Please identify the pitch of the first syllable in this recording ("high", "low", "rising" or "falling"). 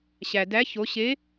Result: low